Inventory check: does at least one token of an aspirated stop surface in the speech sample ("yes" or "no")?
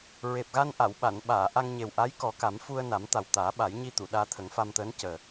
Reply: yes